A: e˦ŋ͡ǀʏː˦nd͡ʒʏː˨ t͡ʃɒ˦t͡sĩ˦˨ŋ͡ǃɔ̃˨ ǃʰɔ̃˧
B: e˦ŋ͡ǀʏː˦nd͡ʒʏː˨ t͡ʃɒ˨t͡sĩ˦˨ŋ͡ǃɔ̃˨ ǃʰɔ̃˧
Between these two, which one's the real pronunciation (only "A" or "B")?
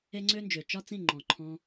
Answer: A